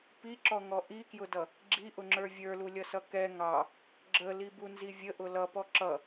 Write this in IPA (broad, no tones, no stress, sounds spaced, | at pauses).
p i ǁ ɔ ŋ ɔ ʔ i k j ʊ d ʌ | ɡ͡ǁ i ʔ ʊ ŋ͡ǁ ə˞ vʲ ə˞ l u lʲ ʌ s ʌ k ɛ ŋ ɑ | ɡ͡ǁ ə l i b u n z i vʲ ə ʔ ʊ l ʌ p ɔ ǁ ʌ